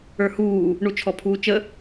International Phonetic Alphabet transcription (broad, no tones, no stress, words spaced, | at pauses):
ə˞huː | ɳut͡ʃʰɔpʰuːt͡ʃə